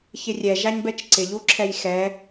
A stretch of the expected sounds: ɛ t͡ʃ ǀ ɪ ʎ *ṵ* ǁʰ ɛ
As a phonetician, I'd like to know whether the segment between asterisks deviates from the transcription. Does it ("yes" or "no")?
yes